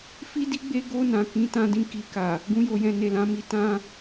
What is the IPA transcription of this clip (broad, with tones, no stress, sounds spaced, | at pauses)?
f i˦ d i˦ ɡ͡b e˦ ɡ o˧ n ã˨ k ĩ˨˦ t ã˧ d ĩ˧ k i˨ k a˨ | ɡ ũ˧ j o˨ j ɛ̃˨ n e˨ l ã˨˦ m i˧ t ã˦